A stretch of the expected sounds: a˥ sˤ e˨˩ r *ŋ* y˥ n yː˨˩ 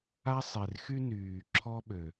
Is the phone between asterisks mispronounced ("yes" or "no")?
yes